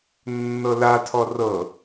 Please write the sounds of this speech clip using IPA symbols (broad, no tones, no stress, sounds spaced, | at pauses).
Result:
nː ɤ l a tʰ ɔ r ɤ